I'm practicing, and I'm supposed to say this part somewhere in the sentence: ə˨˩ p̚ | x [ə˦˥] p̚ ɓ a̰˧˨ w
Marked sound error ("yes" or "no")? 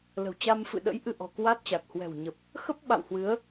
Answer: no